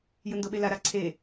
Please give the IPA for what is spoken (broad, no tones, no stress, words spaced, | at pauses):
jɯndoɓela ɾaǀʰe